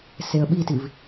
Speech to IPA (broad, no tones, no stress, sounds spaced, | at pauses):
s e ə̯ ɓ i t i v